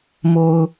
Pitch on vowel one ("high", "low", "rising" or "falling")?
low